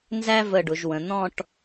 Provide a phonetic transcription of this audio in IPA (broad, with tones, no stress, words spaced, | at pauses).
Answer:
nzæ˥və˧˩ ɖʊ˩˧ʒwə̃˩˧ n̪ɔ̃˥˧ʈ